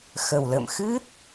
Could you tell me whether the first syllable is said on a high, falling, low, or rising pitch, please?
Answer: low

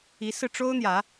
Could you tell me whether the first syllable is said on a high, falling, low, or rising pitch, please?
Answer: rising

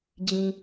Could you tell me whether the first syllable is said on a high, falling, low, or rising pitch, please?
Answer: low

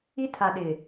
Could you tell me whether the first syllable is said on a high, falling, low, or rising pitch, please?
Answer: high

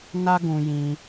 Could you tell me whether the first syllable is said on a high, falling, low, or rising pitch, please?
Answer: high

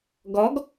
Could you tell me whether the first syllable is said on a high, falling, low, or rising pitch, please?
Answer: rising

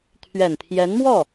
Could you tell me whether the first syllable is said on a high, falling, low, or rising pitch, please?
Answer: low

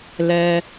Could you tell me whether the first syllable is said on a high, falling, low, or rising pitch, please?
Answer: high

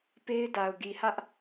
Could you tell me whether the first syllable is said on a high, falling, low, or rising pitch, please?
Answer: high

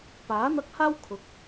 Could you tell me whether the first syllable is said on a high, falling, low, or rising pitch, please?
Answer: rising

